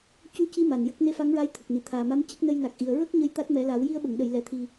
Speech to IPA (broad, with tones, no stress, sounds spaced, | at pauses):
c u˧ c i˧ m a˨˩ n j ə˦˥ k̚ n e˧˥ f a˧˥ ŋ ɹ a˧˥ j t̪ʰ ə˨˩ k̚ n i˨˩˨ t̪ʰ aː˨˩ m a˧˥ m c ə˦˥ k̚ n ə˧ j n a˨˩ k̚ ʔ i˨˩˨ ə̯ ɹ ə˦˥ k̚ ɲ ə˧ j t̪ a˦˥ t̚ m ɛ˨˩˦ l a˨˩˦ w j i˧ ə̯ ɓ ə˨˩˨ ŋ ɗ ə˨˩˨ j l ɛ˨˩˨ t̪ʰ i˨˩